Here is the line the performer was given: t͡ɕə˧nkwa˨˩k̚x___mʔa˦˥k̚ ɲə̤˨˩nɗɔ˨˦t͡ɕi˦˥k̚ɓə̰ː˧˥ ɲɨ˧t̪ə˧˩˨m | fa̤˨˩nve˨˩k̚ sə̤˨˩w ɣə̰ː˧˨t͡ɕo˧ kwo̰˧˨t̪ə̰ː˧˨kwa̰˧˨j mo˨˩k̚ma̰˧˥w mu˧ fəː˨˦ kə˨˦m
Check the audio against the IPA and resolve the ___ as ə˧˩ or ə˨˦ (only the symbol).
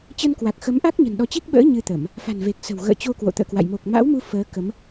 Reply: ə˨˦